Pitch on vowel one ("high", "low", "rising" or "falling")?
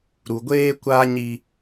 low